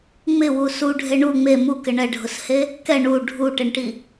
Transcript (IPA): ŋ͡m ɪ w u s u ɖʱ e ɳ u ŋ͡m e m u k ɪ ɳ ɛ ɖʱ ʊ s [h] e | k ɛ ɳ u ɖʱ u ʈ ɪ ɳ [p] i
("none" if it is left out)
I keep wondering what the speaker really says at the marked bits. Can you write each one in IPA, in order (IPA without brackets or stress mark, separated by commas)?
h, ʈ